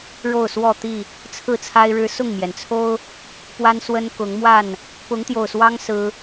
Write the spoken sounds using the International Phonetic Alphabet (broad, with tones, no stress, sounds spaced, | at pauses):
ɻ o˥˨ ʊ̯ s w ɔ˥˨ t̪ i˥˨ | t͡sʰ ɹ̩˥˨ t͡sʰ a˦ ɪ̯ ɻ ɻ̩˦ s ʊ˥˨ ŋ m j ɛ˩ n t͡sʰ o˦ ʊ̯ | p w a˦ n s w ə˦ n k ʊ˨˦ ŋ m w a˥˨ n | p ʊ˨˦ ŋ t̪ j o˨˩ ʊ̯ s w ɑ˦ ŋ s ɹ̩˦